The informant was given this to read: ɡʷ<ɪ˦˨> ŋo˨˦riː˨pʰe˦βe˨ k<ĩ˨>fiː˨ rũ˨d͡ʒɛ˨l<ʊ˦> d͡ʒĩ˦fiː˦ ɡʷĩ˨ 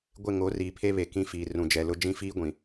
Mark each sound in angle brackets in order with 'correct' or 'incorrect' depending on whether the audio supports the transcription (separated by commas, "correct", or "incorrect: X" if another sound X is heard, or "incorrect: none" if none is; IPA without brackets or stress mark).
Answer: correct, incorrect: ĩ˦, correct